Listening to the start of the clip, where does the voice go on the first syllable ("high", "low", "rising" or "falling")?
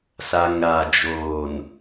low